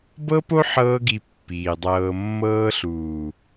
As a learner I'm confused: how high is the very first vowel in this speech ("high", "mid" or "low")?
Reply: mid